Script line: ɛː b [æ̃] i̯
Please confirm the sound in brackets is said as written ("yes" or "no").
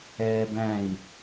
yes